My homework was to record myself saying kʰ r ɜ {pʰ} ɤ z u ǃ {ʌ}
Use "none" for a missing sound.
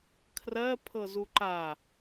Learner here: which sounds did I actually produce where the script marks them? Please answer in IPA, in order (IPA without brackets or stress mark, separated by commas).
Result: pʰ, a